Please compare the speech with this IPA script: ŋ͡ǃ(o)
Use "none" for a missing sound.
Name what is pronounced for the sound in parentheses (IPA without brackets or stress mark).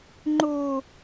o